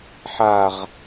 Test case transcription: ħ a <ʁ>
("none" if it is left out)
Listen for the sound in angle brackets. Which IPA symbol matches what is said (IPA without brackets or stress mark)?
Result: ʁ